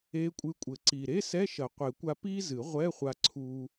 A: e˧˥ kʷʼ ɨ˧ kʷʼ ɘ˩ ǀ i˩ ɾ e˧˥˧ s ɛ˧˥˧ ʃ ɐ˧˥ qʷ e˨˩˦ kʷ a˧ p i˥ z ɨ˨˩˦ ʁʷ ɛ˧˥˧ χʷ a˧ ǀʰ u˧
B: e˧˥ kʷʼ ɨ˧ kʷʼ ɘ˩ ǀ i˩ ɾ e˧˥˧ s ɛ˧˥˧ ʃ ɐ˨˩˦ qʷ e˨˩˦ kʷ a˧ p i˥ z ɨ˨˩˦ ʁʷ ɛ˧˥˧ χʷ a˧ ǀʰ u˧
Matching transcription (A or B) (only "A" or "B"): B